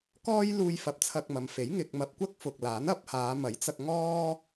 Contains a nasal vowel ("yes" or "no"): no